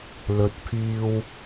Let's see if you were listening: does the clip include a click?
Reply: no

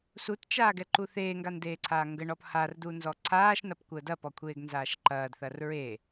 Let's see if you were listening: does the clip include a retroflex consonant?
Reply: yes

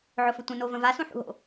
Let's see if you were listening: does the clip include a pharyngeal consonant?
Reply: yes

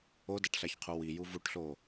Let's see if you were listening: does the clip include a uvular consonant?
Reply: yes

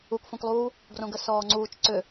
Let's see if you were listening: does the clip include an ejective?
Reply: no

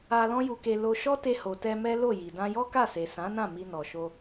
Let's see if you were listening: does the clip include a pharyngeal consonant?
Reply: no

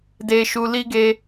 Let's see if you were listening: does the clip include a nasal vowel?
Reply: no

